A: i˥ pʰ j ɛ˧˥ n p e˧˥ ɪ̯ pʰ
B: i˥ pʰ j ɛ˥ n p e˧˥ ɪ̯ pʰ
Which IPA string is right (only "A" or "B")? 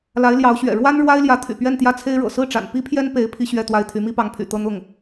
B